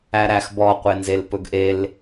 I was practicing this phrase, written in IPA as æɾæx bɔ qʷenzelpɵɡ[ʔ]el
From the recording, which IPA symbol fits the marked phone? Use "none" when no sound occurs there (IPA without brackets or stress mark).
ʔ